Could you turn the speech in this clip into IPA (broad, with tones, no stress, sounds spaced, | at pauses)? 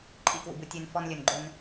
ǃʼ ḭ˦˨ k w ṵ˨ b u˨ tʲ ʉ˨ n f ɔ˦ n lʲ ɵ˨ n ɡ͡ǃ ɵ˦ n